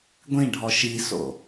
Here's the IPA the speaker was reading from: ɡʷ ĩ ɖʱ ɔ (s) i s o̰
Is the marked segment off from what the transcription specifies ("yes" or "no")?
yes